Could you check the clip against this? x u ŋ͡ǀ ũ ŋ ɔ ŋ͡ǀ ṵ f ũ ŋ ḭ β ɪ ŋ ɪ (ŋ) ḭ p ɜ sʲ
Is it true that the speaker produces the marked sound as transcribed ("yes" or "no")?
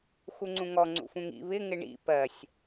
no